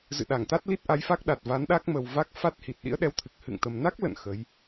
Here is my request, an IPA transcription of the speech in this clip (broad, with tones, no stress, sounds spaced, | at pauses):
z ɨ̰˧˨ ɗ a˧˩ ŋ t̪ a˦˥ t̚ l i˦˥ t̚ ʔ a˨˦ j f a˦˥ k̚ ɗ a˨˩ t̚ v a˨˦ n ɗ a˦˥ k̚ m ə˨˩ w v a˦˥ k̚ f a˦˥ t̚ h i˨˩ t̚ ɗ ḭ˧˥ ə̯ ɗ ɛ˨˦ w t̪ʰ ɨ˨˩ k̚ h ɨ̰˧˨ ŋ t̪ ə˨˩ m n a˦˥ k̚ l ə̰˧˨ n x ə˨˦ j